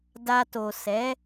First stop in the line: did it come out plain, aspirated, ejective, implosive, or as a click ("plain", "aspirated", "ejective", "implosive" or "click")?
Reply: plain